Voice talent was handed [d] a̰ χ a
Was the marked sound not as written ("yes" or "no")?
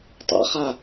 yes